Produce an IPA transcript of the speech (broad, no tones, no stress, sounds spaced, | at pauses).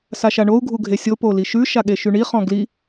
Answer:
s a ʃ a ɳ o u̯ ɡʱ u ɡʱ e sʲ o p o l i ʃ ʉ ʃ a ɠ e ʃ y ɳ i χ ɔ̃ ɡ l i